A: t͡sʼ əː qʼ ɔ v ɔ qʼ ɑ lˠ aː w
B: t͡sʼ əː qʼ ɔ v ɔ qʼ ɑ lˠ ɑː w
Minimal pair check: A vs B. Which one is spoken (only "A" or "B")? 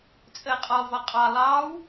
B